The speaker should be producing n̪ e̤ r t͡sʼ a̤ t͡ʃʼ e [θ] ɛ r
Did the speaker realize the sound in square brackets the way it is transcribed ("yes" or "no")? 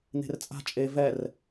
no